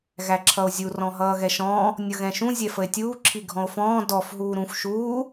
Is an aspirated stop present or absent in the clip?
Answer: present